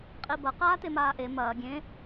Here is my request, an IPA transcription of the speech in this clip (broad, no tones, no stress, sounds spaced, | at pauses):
qʼ i b ɐ q aː t e m aː ʔ e m ɐː ɡʲ ẽ